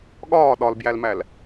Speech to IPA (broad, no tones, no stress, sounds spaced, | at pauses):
ɠ ɒː ɗ ɒ l b j æ l m æ l